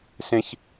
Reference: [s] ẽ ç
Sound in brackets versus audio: correct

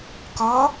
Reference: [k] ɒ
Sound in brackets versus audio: correct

